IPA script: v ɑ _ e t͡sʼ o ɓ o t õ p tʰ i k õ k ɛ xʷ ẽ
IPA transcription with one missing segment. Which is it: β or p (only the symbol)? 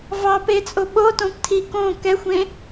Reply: p